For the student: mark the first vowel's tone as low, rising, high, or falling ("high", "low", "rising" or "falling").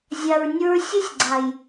low